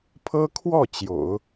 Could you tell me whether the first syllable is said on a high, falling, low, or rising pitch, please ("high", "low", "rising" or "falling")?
high